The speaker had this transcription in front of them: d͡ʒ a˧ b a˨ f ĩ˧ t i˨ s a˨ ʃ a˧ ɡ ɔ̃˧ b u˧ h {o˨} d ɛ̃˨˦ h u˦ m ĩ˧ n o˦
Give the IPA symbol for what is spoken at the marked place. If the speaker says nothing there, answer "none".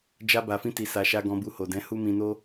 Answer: o˨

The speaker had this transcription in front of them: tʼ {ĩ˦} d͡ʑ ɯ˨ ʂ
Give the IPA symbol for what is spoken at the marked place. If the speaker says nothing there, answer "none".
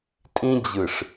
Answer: ĩ˦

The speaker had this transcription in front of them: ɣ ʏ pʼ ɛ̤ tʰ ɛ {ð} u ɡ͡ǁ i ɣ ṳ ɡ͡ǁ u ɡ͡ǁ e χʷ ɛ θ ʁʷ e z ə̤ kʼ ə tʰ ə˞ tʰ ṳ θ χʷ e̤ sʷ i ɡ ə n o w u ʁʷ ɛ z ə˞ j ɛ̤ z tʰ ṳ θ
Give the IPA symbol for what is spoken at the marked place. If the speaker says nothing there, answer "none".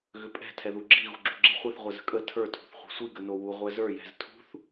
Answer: ð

